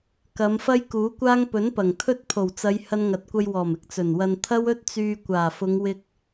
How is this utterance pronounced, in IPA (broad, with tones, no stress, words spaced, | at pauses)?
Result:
kɐ˨˧mfɐ˥jkuː˨˥kʷaː˥ŋ pɵ˨˥npɐ˨˩ŋt̪ʰɵ˥t̚ pʰo˨˩wt͡sɐ˨˧j hɐ˧nŋɐ˨t̚kʷɐ˧jwɔː˨˩m ɪ˨˥k̚t͡sɵ˨˩nwɐ˧n t̪ʰɐ˥wɵ˥t̚t͡syː˧ kʷaː˨˩fʊ˨˧ŋwɪ˧k̚